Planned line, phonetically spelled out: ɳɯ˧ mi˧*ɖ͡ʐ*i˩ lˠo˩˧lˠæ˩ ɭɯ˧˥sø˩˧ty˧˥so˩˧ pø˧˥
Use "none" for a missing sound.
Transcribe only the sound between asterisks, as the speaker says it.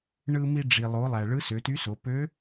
ɖ͡ʐ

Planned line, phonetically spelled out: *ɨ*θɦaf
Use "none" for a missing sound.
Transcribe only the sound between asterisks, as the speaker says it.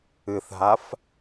ɨ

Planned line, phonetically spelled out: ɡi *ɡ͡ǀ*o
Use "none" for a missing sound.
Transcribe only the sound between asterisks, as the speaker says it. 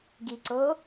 ǀ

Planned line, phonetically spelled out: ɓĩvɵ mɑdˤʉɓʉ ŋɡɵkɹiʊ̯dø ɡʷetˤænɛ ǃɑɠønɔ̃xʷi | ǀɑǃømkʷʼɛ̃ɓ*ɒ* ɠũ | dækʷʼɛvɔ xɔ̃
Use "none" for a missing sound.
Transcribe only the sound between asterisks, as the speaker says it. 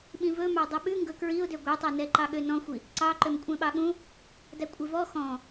ɑ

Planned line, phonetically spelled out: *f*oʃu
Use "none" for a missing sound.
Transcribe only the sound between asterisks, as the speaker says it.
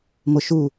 m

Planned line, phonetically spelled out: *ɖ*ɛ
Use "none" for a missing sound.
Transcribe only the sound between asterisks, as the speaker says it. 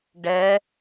ɖ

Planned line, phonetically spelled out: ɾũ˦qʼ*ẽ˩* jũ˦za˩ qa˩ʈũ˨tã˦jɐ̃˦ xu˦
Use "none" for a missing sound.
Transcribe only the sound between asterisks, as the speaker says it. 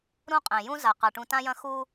ẽ˩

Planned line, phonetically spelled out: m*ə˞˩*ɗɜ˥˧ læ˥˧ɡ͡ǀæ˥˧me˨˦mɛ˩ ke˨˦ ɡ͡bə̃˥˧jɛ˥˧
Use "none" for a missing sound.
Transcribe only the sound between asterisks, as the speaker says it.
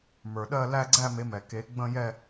ə˞˩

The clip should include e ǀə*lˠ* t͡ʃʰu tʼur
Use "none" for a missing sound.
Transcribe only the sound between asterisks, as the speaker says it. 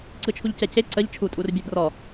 ʎ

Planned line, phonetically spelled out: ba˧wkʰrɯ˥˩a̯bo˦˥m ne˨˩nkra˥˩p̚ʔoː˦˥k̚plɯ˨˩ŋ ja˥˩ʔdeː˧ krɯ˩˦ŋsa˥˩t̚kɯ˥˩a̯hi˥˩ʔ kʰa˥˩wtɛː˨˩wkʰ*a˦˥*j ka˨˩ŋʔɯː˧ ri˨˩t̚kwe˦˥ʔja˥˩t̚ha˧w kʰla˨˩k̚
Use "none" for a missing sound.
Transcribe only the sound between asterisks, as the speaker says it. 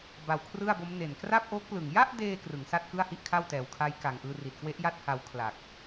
a˦˥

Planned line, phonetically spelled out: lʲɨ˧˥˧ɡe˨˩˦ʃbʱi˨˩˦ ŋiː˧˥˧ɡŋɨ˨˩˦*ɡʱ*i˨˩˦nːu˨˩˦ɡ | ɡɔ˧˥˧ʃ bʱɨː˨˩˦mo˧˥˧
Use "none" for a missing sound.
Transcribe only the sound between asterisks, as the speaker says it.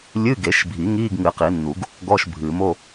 q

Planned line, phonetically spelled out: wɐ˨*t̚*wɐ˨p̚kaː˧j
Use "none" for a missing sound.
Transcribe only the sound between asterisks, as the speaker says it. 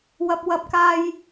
p̚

